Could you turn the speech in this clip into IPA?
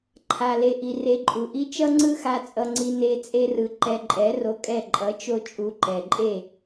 ǃʰ a˨ l e˨ ʔ i˨ r e˧ ǃʼ u˨ ʔ i˦ t͡ʃ ʌ˦ ŋ͡ǀ ɯ˦ x a˧ t͡sʼ ʌ˧ ŋ͡ǀ i˦ n e˧ t͡sʼ e˦ r ɯ˧ ǃ ɛ˧ ǃʼ ɛ˨˦ r o˧ kʼ ɛ˦˨ ǃʼ ʌ˨˦ t͡ʃ o˦ t͡ʃʼ u˧ ǃ ɛ˨ ǃʼ e˦˨

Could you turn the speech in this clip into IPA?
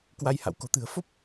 k w a˧ j h a̰˧˨ w k o̤˨˩ t̪ ɨ̤˨˩ ə̯ f o˦˥ p̚

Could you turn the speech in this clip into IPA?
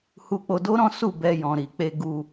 h u˧ k͡p o˧ d o˦ ɾ ɔ̃˦ s u˦˨ b ɛ˧ j ɔ̃˨ ɾ i˨ k͡p e˧ ɡ u˦

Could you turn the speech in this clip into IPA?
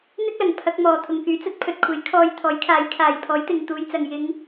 n̪ ɪ˥ k̚ l ɐ˨˩ ŋ pʰ ɐ˧ k̚ m ɔː˨ t̪ʰ ʊ˨ ŋ k yː˨˥ t͡s ɐ˨˥ t̚ pʰ ɵ˨ t̚ kʷʰ e˨˥ j kʰ ɔː˧ j t̪ʰ ɔː˨˥ j kʰ aː˨˥ j kʰ aː˨˩ j pʰ ɔː˨˥ j t̪ ɪ˨ ŋ t̪ uː˨˧ j t͡s ɐ˨ ŋ j ɪ˨˧ ŋ

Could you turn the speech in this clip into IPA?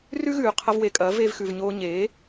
r ʉ˥ ɣ ʉː˩ qʰ ɐ˧ v w e˩ kʼ ɐ˩˥ v eː˧ v x ʉ˩ v ɲ oː˧ ɲ eː˩˥

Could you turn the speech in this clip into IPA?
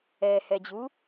ɛ h ɛ d͡ʑ u

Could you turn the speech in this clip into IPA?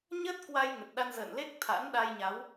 ɲ ə˦˥ t̚ k w a˧ j ŋ ə˨˩ t̚ ɗ a˧ n z ə̰ː˧˨ n l e˦˥ k̚ t̪ʰ a̰˧˥ n ɗ aː˧ j ɲ a˨˦ w

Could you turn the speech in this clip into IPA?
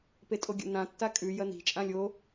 p e tʼ o ɡʲ o̰ n ã tː a kʼ ʉ j ɐ n i̤ t͡ʃʼ ã lʲ o

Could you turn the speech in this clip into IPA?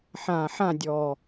ħ ã˨˩ ħ ã˦˨ dʲ ɔ˨˩

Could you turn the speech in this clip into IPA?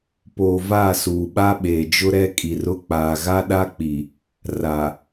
p oː˨ v a˦˨ s uː˨ ɓ a˦ ɓ eː˨ d͡ʒ ʊ˦ ɾ ɛ˦ kʼ i˨ r ʊ˦ k͡p aː˨ ɣ a˦ ɗ a˦ k͡p i˨ | r a˨

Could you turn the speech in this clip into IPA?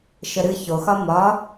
ʃ ə ɾ ɨ ç o x ɒ m ɒ

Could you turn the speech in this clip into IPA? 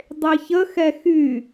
dˤ e ç ə x ɛ x y

